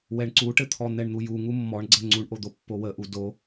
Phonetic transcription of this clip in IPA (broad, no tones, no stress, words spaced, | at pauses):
wɛɳǀuʈɘt̪ʰɔ n̪ɛɳn̪uju ŋumːɔɳɡ͡ǀɛ ŋ͡ǀuɳʔod̪o pːowəʔu do